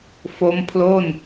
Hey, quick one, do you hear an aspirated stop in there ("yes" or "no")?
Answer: yes